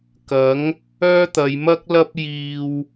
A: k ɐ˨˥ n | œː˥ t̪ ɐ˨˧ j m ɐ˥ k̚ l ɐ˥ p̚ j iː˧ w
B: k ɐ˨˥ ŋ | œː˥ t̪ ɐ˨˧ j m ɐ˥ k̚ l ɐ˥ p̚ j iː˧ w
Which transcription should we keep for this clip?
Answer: B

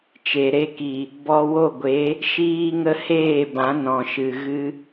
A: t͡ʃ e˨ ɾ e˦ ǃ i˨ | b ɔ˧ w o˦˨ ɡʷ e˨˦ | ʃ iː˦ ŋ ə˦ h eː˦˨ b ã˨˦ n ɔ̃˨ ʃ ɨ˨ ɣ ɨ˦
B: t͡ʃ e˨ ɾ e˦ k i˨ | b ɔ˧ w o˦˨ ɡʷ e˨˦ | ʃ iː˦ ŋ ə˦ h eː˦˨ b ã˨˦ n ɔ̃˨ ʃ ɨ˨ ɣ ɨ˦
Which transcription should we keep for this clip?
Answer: B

